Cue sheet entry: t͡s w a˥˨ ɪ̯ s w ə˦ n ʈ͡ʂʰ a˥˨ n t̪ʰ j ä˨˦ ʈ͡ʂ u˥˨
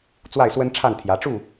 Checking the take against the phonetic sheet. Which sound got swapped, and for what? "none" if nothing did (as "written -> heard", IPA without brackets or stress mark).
none